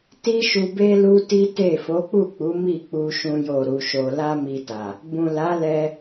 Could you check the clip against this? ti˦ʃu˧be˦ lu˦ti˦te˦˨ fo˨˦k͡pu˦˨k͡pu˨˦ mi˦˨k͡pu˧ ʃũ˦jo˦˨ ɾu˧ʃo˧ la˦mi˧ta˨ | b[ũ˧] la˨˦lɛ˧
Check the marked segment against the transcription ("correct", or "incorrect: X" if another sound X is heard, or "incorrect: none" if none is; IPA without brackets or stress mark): incorrect: ũ˨